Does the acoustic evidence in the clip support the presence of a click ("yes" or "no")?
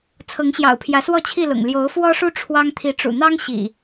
no